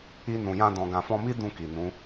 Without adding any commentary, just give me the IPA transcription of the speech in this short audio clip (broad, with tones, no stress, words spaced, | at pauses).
i˧nũ˨jã˧ dɔ̃˨ɡã˨fɔ̃˧mi˦ dũ˦˨ki˨nũ˨˦